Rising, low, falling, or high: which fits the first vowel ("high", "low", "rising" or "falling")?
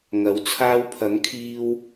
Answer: rising